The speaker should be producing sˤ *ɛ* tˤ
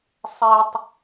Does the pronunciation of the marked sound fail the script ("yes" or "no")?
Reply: no